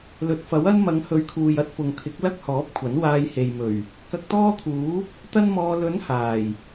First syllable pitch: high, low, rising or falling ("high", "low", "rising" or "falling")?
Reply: low